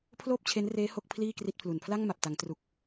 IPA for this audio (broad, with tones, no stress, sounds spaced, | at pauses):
pʰ l oː˥˩ p̚ t͡ɕʰ e˦˥ n r eː˦˥ h o˥˩ k̚ pʰ l iː˥˩ k r i˦˥ t̚ pʰ l u˨˩ n pʰ l a˥˩ ŋ m a˨˩ p̚ t a˩˦ ŋ t r u˨˩ k̚